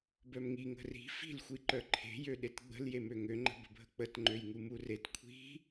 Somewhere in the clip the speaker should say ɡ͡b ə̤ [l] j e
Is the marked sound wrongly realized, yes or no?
no